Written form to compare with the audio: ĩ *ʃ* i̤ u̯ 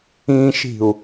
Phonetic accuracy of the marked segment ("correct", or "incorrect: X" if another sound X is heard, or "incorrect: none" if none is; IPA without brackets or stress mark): correct